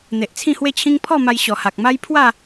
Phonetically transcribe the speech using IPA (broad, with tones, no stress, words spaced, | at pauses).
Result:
n̪e˨ʔt͡sʰĩ˥˧hwe˥˧t͡ɕʰĩ˦ŋ pʰɔ˥˧ma˧j ɕɔ˨˩ha˨k̚ma˦j pʰwa˥˧